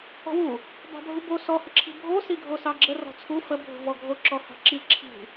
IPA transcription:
ɔ̤ w u | b ɑ̤ bʱ u b o s ɔ h ə ǁʰ i̤ bʱ o s i ɡʱ o s ɑ ɡ͡ǁ ə r ɔ̤ t͡sʰ u f ə bʱ ṳ v ɔ ɡʱ o ǁ ɔ h ɑ̤ ǁ i ǁʰ i̤

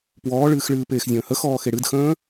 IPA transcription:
p w ɔː ɭ ɨː x ɭ ɨː p eː x zʲ ə̃ː h ə x ɔː x e ɽ ɨ d x ə̃ː

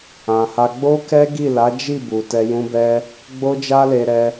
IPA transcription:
ã˧ h a˦ ɡ͡b o˦ k ɛ˦ ɡ i˦˨ l a˨˦ d͡ʒ i˦˨ b u˨ t ɛ˧ j ũ˦ b ɛ˦ | ɡ͡b o˦ d͡ʒ a˦ l e˧ ɾ ɛ˧

